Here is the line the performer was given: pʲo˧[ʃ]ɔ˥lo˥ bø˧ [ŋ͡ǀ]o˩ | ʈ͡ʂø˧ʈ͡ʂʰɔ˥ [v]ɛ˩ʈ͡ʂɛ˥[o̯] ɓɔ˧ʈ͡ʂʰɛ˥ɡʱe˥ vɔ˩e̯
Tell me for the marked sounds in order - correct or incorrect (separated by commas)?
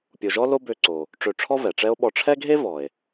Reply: incorrect, incorrect, correct, correct